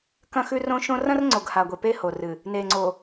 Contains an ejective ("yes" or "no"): no